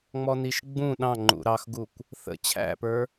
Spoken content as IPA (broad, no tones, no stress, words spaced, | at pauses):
ŋ͡mɔniʃɡ͡bũ ɗɑ̃ŋ͡ǃṵ ɾɑxɡukʷ | θə̰ t͡ɕʰæ̰pə˞